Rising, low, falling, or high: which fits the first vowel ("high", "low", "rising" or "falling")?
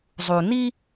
low